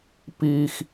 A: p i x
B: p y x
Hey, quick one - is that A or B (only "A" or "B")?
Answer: A